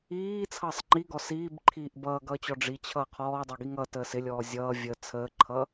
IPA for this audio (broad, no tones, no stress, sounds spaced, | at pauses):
iː t͡sʰ ʌː sˤ ŋ͡ǃ i ɡ ɔ s iː b ǃʰ iː ʔ b ʌː ɡ ʌː t͡ɕ ɔ ɖ͡ʐ i t͡ɕʰ ʌː qʰ ɔː dˤ ɛ ɡ i ŋ ʌ t əː s ɪ lʲ ɔː zʲ ʌː vʲ ə t͡sʰ əː ǃʰ ʌ